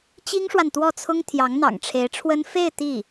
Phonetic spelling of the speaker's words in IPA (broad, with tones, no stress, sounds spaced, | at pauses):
t͡ɕ i˥ ŋ ʂ w a˨ n t̪ w ɔ˥˩ t͡sʰ ʊ˥ ŋ t̪ʰ j ɑ˧˥ ŋ n̪ ɑ̰˨˩ ŋ ʈ͡ʂʰ e˧˥ ɪ̯ ʈ͡ʂʰ w ə˥ n f e˥˧ ɪ̯ t̪ i˥˩